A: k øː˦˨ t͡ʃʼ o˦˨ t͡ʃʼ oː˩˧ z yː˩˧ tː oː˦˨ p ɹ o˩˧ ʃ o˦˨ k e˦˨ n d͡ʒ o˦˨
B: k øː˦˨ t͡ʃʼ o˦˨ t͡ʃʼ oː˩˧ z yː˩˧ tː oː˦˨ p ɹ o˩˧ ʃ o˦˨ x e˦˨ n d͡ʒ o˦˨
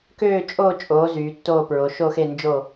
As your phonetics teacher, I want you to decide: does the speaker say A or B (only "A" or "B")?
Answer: B